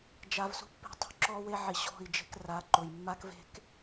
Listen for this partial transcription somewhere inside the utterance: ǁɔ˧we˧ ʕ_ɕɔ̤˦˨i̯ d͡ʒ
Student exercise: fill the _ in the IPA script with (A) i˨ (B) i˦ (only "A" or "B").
A